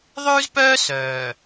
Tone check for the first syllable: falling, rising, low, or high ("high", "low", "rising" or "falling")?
high